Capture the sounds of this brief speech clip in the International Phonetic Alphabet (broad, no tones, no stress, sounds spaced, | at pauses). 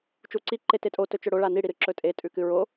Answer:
t͡ʃ u ǀ i ǃ e t e tʼ o t ɵ t͡ʃ ɵ ɽ o ɭ a n i ɽ i ɾ ɨ ǁ ɵ tʼ e tʼ ʉ k ɨ ɹ o